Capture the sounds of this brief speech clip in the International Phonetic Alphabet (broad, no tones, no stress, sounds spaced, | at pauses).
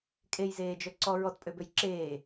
kʼ e j z eː d͡ʒ œ ǀ ɔ ɹ ɔ t pʼ ø b ø j ǁ eː